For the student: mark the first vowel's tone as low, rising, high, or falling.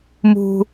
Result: high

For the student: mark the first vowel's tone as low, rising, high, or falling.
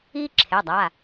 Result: high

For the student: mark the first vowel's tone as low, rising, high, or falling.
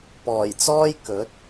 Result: low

